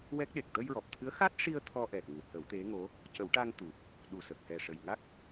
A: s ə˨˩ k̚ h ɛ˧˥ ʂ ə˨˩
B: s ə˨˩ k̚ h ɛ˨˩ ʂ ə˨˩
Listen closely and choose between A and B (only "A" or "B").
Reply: B